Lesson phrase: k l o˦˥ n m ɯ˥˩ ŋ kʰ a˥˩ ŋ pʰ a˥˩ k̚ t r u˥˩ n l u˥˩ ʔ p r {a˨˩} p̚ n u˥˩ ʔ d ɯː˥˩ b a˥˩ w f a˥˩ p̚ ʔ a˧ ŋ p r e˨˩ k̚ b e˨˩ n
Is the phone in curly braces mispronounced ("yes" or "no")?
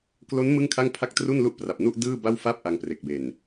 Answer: no